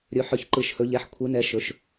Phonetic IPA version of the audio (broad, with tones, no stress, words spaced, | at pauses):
ɾʲɵ˨˦ħœ˧˩˧ç ǃɯ˧˩˧ʃhɵ˨˦ʎɛ˨˦ħ kʷʰɯ˨˦nɛ˨˦ ʃɵ˨˦ʃ